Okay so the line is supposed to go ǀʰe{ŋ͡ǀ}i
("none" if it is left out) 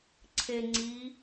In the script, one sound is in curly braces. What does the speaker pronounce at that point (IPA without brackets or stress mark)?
ŋ͡ǀ